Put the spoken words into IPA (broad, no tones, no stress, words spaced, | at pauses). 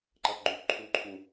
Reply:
ǃʌʔɡ͡ǃũʔǃʰuǃʰũ